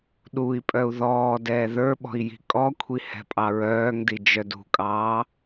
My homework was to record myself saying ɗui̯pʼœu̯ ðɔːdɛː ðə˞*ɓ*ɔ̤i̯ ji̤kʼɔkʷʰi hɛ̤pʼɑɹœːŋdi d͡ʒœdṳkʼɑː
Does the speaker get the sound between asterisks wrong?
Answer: no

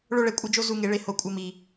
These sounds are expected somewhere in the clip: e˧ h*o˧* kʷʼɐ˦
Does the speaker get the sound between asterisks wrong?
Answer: no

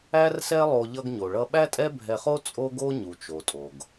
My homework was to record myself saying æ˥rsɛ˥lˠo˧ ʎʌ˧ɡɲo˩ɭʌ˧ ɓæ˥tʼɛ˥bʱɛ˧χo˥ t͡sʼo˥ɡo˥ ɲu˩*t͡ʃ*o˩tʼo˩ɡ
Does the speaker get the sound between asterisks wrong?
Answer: no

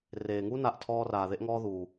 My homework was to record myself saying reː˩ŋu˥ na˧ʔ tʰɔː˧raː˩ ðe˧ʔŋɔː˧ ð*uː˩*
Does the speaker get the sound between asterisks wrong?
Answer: no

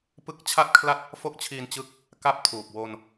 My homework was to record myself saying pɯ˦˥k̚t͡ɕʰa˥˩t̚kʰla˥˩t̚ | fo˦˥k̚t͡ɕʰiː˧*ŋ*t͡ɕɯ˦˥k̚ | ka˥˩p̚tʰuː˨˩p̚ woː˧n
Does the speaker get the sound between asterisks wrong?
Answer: yes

